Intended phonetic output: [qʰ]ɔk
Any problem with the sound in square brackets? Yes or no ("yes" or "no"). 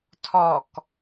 yes